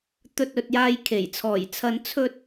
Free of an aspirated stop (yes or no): no